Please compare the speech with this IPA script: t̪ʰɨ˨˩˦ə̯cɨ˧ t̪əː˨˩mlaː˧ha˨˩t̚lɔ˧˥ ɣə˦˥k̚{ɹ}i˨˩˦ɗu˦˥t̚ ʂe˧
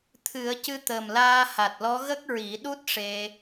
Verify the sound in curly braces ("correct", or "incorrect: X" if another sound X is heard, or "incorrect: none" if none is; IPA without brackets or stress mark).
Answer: correct